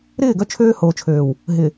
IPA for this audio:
ɾ ɪː˦˨ ɡ œ˦ t͡ʃʰ øː˦ h oː˨ t͡ʃʰ øː˨ w | ɦ ɪ˨

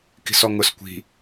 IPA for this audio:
k i̤ s ɔ ŋ ʊ s kʷ i̤

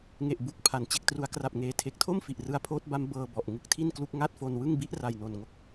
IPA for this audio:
ŋ e˨˩ ʔ b u˨˩ k̚ pʰ a˩˦ n t͡ɕ e˨˩ k̚ t r u˩˦ a̯ k r a˨˩ p̚ ŋ eː˨˩ tʰ e˨˩ k̚ tʰ o˥˩ m f i˨˩ ʔ r ɯ˦˥ a̯ pʰ oː˦˥ t̚ b a˦˥ m b ɤː˧ b ɔ˨˩ ʔ ŋ ɯ˦˥ k̚ tʰ i˥˩ n k l u˦˥ k̚ ŋ a˥˩ t̚ f o˧ n w ɯ˥˩ ŋ b i˦˥ ʔ r a˨˩ j n o˨˩ n ŋ o˥˩ k̚

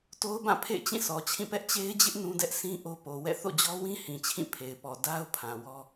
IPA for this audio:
t o˦ ʊ̯ b ã˦˨ pʰ ḛ˦˨ ɪ̯ t͡ɕ ĩ˦˨ sʰ ɔ˨ t͡ɕʰ ĩ˦˨ p ɛ˦ ʔ t͡ɕ e˦ ɪ̯ d͡ʑ ɪ˦ ʔ n ũ˦ d ɛ˦ ʔ s ĩ˦ ʔ o˦ p o˨ w ɛ̰˦˨ θ o̰˦˨ d͡ʑ ɔ˦ w ĩ˦ h ĩ˨ t͡ɕʰ ĩ˦˨ pʰ e˨ ɪ̯ p ɔ˨ d a˦ ʊ̯ pʰ ã˨ w ɔ˦

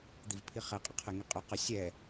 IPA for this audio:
d̪ i v pʰ i χ ɛ qʼ ə qʰ ɛ ŋ i qʼ œ q ə sʲ ɛ

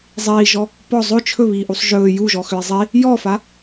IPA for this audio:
zˤ iː ʒ ɔ | p ɔ zˤ ɵ t͡ʃʰ ɵ β iː ʔ u sˤ ʒ ɵː j u ʒ ɔ x ʏ e̯ zˤ i | j ɔ f a

